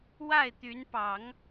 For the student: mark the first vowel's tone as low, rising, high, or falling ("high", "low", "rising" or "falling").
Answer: falling